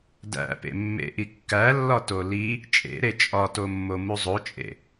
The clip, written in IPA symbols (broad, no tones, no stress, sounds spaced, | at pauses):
d æ̰ p ḛ mː ḛ ʔ i kː æ lː ɒ t o l i | t͡ʃʼ ḛ ɾ e t͡ʃʼ ɒ t o mː o m u zˤ o t͡ʃʼ ḛ